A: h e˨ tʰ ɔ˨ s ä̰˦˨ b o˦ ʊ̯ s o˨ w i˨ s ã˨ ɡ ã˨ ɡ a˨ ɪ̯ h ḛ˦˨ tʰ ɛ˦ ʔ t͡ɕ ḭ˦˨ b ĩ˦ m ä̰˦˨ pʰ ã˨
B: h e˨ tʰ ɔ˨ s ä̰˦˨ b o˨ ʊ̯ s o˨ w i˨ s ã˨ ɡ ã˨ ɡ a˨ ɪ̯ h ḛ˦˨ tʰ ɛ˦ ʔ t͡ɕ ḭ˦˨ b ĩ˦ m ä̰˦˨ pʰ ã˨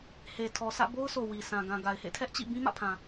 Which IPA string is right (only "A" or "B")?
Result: A